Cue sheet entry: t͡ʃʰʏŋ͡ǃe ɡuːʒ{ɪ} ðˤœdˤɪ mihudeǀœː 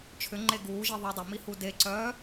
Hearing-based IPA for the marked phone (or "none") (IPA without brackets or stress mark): i